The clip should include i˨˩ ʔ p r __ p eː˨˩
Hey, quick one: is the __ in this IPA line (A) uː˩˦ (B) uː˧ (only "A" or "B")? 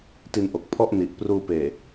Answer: B